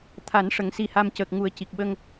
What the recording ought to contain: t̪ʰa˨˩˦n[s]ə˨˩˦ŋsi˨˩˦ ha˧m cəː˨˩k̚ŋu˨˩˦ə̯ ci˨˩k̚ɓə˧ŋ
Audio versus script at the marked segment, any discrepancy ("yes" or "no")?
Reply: yes